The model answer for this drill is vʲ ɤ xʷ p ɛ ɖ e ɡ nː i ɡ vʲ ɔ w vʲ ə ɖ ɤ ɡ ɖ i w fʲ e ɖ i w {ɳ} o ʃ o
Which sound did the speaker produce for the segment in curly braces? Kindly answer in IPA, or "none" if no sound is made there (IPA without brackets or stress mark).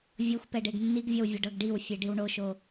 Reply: ɳ